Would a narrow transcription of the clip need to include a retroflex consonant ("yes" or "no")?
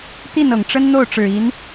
yes